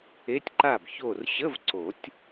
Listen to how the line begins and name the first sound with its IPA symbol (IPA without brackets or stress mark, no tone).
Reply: e